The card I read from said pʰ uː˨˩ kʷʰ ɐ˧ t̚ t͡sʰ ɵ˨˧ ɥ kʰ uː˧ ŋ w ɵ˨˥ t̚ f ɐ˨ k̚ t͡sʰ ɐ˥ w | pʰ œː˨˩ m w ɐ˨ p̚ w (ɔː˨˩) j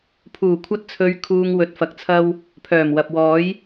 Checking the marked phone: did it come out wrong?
yes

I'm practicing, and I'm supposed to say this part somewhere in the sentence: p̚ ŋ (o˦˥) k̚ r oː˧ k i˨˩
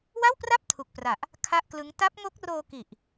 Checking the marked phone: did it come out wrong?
no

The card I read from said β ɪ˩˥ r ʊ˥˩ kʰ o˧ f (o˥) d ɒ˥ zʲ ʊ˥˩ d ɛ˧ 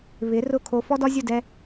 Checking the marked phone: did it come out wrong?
yes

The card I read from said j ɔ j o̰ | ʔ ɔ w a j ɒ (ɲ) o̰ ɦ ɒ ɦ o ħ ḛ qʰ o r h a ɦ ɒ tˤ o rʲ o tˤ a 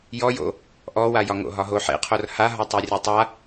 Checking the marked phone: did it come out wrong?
yes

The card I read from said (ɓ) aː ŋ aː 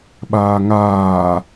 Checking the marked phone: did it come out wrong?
no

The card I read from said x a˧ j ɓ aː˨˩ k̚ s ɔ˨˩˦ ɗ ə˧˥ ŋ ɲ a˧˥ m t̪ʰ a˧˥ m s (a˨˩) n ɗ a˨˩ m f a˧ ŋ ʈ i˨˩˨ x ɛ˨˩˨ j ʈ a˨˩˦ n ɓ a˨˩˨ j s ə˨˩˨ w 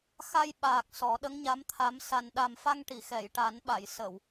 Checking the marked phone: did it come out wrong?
no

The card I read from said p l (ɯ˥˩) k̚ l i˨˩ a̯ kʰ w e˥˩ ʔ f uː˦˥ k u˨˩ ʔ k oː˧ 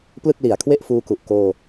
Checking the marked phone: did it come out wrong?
no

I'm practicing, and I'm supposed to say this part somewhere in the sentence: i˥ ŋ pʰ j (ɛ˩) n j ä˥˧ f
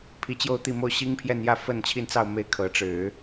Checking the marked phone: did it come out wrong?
yes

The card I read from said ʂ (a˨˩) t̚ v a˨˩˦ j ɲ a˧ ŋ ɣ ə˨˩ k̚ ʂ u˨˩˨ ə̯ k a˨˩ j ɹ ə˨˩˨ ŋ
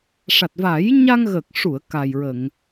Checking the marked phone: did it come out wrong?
no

